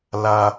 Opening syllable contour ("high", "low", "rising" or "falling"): high